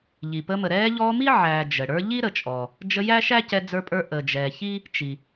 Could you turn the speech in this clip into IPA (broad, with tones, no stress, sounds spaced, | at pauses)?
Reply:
ʎ i˩ p ə˦ m ə˨ ɾ ɛː˦ ʎ ɔː˦ m i˥ ʕ æː˨ d͡ʒ ə˩ ɽ ə˞˦ ʎ i˥ ɾ ə˨ t͡ʃʼ ɔː˩ | d͡ʒ ə˦ j æ˥ ʃ æ˥ c ɛ˦ d͡z ə˞˦ pʼ ə˞˦ ʔ əː˨ d͡ʒ ɛː˨ ç i˥ | t͡ʃ i˩